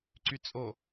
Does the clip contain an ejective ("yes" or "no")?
yes